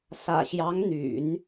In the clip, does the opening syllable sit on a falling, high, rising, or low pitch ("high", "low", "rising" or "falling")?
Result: low